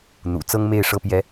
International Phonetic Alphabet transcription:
n̪ṵ˨˩t͡sɤ˥ŋme˥˩ɪ̯ ʂɤ˥pjɛ˧˥

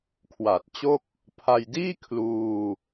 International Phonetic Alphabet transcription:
kʰwa˨˩t̚t͡ɕo˥˩k̚ | pʰa˧jdiː˥˩ kʰluː˧

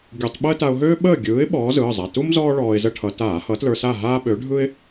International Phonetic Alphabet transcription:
ɡʲu˧˩˧tˤ ɓəː˥ta˧ʊ̯ɦøː˥ ɓəː˥˨ɡʲɯː˨˥ɪ̯ ɓɔː˨˥zɯː˩˧˩zˤa˩˧˩ tu˥m zɔː˥ɭɔː˧ɪ̯zə˥˨ʈʰʌ˧˩˧ taː˧˩˧hʌ˨˥tlə˞˧ sa˥˨ɦaː˥ɓø˨˥ ɖʱɯ˥ɪ̯

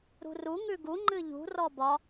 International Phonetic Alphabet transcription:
ɾṳru ŋʉɡu ŋ͡ǃɨʎṳ rɔbɒ

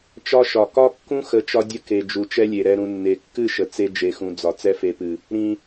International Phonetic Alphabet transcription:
t͡ʃɒ˦ʃɒ˨ kɒ˦kːũ˦xə˨˦t͡ʃɒ˧ dʲə˧ke˨ d͡ʒu˨t͡ʃɛ˦lʲe˨ɾɛ˧ ɾũ˨nːe˨kːɨ˦˨ʃə˨ t͡se˧ d͡ʒe˨xũ˨d͡zɒ˨ t͡sɛ˦fe˧pɨ˨ | ɾĩ˨

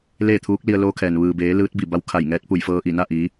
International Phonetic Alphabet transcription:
leː˥˨t̪ʰuː˧˥k̚ li˧ə̯loː˧˥kʰɛː˩n ʋɯː˩beː˩˧ lɯː˧˥t̚bi˧˩ba˧wkʰa˧˩j ŋɛː˧˥t̚pu˧˩jfɤː˧ʔi˧˩ na˥˨ʔi˩˧

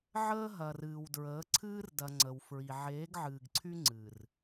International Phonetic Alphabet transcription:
ʕəː˦ ɦɐ˨rɨː˨wdɹəː˨˦ ǀʰɨː˦rdɐ˨ ŋ͡ǀə˨wfɹi˨ ʕeː˨˦ɡʕɨː˨ɡǀʰy˦ ŋ͡ǀɨ˨r

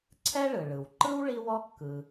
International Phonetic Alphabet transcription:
ǀʰɛ˥ɭɯ˩ ɭɯ˩wǃɯ˥w ɭi˥wɔ˥ kːɯ˨

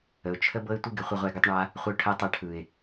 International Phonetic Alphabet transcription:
ə˨ʊ̯t͡ʃʰə˦ bɤ˦ɪ̯tʷɯ˦ɡɪ˧χʷɪ˧ ʁʷɛ˧ɡɯ˧tˤɳa˦ | χʷə˧ʊ̯ʈʰɛ˧tˤɛ˧ ʈʰɯ˨ɪ̯

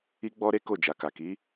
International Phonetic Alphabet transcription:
i˦ɡ͡bɔ˦ɾe˦ ko˦˨d͡ʒa˨ka˨ ki˨˦

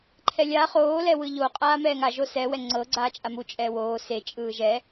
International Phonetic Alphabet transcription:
ǃʰɛlʲa χoːlɛwɯ ʎo qʼaːmɛːŋa ʒosɛ wɛŋ͡ǀɤɡ͡ǀaːt͡ʃʼa mu t͡ʃʼɛːwoː set͡ʃʼɯː ʒɛ

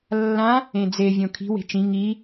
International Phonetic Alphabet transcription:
lːã | ẽd͡ze vʲõkʰi̤we̤ t͡ʃĩ ŋi

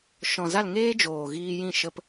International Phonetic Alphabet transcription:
ʃɔ̃˨za˦˨l ŋeː˦d͡ʒoː˨ ɣiː˧jĩ˦˨ ʃə˧p

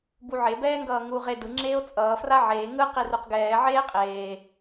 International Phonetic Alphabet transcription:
buʕe bɛːŋɡʌːŋu ʁe dɯ ŋ͡ǁeːo̯t͡sʼʌː fraʕeː ŋɯ qiruqɡɛː ʕeːqʼeː

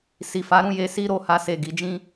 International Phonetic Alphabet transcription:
si˨ fa˨˦ɾũ˧je˧ si˦ɾo˧ ha˧se˨ ɡi˨˦d͡ʒĩ˦

